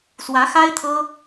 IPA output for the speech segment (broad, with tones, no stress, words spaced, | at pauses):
swä˧˥xa˥ɪ̯ t̪ʰɤ˥